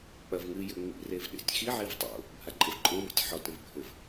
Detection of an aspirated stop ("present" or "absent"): absent